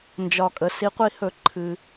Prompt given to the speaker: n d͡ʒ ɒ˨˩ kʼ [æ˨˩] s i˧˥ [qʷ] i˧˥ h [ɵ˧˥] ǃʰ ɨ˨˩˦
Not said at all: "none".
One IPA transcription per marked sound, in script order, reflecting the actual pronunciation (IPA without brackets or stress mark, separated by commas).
ə˨˩, qʷ, ɵ˨˩˦